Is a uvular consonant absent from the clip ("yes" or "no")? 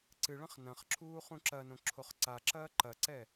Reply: no